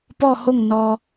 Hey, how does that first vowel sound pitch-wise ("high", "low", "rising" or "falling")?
falling